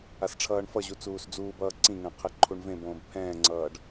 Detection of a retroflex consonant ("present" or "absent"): present